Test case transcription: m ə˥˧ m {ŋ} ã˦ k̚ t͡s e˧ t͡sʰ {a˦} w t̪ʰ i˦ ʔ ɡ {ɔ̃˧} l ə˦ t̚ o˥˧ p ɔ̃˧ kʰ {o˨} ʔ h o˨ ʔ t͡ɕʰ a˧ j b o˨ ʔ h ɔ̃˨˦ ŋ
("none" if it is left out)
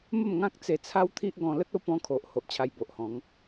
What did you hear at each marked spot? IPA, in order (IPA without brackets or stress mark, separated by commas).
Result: ŋ, a˦, ɔ̃˧, o˨